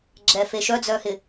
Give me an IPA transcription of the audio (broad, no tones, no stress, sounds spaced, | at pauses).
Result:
ɡ͡ǁ ɛ f e ʃ œ d͡z œː h ɪ